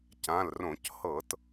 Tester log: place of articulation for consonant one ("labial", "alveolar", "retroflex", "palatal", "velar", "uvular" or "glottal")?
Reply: palatal